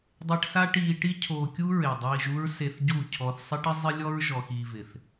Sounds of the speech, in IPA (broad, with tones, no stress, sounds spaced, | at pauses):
dˤ e˧ ʈ s a˦ ʈ iː˧ ʈ i˦ cʰ oː˧ kʲ u˦ ɹ e˨ dˤ iː˧ ʒ u˦ ɹ s e˧ θ ɟ u˦˨ cʰ ɔ˧ θ sˤ ɪ˦ ʈ ɪ˦ zˤ ɪ˦ lʲ ɔ˦ ɹ ʒ ɔ˧ x iː˧ v ɪ˨ θ